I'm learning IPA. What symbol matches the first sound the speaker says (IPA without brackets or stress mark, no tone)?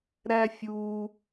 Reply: ɾ